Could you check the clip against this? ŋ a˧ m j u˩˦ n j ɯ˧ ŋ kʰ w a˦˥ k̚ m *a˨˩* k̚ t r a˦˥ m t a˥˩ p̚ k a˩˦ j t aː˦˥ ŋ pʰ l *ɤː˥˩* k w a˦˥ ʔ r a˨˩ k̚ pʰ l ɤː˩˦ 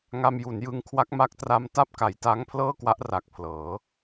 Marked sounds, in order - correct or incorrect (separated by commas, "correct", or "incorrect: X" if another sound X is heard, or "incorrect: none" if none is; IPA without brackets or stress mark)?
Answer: incorrect: a˦˥, correct